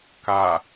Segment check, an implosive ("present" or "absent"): absent